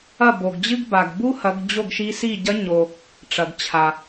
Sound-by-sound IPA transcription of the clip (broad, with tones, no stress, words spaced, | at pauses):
ɐ˥˩bo˩ɡd͡ʑɨ˥ɡba˩ɡ bu˥hɐ˩˧ɡ d͡ʑo˥˩ɡʃi˧˥si˥˩ ɟɐ˧˥ɲo˩ | ʈ͡ʂɐ˩ɡt͡ɕʰa˩